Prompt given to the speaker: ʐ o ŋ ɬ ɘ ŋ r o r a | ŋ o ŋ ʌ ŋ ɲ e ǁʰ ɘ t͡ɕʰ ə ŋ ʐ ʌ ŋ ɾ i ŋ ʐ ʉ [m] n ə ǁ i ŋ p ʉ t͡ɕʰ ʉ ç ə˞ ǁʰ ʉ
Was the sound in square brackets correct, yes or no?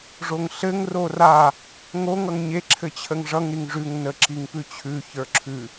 no